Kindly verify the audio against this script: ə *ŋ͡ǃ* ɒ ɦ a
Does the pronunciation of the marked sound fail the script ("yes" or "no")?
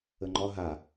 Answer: no